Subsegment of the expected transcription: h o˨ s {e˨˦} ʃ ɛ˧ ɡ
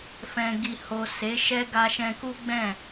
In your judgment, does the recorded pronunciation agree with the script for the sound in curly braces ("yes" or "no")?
yes